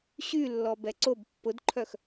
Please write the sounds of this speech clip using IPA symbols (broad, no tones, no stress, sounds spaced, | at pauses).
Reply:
ɕ y lː ɔ b ɛ ǀ o b pː ʊ d ǃʰ œ x